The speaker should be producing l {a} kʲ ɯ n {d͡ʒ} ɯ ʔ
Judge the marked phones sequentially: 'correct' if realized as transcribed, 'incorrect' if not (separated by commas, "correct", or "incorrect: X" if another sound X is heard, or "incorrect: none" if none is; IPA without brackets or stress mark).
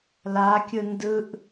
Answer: correct, incorrect: d